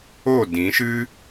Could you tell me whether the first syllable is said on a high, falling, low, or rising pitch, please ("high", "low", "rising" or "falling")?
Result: falling